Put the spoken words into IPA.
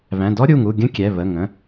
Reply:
β æ̃˩˧˩ d ɔ˦˥ ɾʲ u˩˧˩ ŋ u˩˧˩ ɡʲ ə̃˦˥ kʲ ɛ˩˧˩ β ə˩˧˩ ŋ ə̃˩˧˩

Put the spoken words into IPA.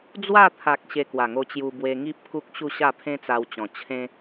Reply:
d͡z w a˥˧ t̪ʰ a˨ k̚ ɕ e˧ k w a˨˩ ŋ o˧ t͡ɕ j u˧ b w e˧ ŋ i˦ p̚ k u˦ k̚ ɕ u˥˧ ɕ a˥˧ pʰ ẽ˦ t͡s a˧ w t͡ɕ ɔ̃˨˩ t͡ɕʰ ẽ˧

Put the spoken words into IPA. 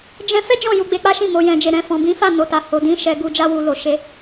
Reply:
d͡ʒ ɛ̃˧ f ɛ˦ d͡ʒ ɔ̃˦˨ j u˧ ɡ͡b e˧ k͡p a˦ ʃ ĩ˦˨ m o˧ j ɛ̃˧ d͡ʒ e˧ ɾ ɛ̃˧ f ɔ̃˨ b ĩ˨˦ f a˦˨ n o˨ t a˨ h o˨ d ĩ˨˦ ʃ ɛ˧ ɡ u˧ d͡ʒ a˧ w u˨ l o˨ ʃ e˨˦

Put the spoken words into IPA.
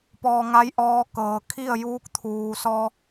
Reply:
p ɔː˧ ŋ a˧˥ j ʔ ɔː˧˥ k ɤː˩ kʰ i˥˨ ə̯ j uː˧˥ k̚ t̪ʰ uː˩ s ɔː˧

